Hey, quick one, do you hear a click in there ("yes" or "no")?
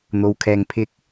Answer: no